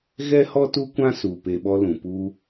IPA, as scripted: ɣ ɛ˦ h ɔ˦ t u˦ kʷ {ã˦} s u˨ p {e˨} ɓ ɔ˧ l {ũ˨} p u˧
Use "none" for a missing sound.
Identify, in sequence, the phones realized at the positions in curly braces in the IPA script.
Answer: ã˦, e˨, ũ˨

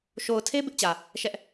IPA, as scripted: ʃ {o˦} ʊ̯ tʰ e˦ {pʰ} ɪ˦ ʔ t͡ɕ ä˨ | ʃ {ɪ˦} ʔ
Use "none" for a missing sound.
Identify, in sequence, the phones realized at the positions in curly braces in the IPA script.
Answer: o˨, b, ɛ˦

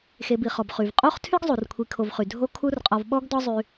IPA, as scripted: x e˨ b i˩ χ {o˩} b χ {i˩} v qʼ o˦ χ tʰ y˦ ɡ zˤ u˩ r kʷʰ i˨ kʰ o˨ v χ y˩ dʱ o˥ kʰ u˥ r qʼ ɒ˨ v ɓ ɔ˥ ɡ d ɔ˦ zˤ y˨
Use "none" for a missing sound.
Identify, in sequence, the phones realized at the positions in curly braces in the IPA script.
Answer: ɔ˩, y˩

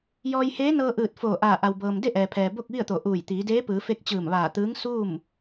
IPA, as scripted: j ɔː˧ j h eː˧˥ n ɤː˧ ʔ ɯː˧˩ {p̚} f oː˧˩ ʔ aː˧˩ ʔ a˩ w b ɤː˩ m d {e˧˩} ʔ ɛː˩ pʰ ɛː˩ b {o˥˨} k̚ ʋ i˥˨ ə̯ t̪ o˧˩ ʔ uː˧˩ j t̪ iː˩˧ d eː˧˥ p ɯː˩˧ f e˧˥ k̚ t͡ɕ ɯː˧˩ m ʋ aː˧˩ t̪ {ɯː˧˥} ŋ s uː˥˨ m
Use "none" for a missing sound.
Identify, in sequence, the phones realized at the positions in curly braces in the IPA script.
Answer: t̚, e˥˨, o˥˨, ɯː˧˥

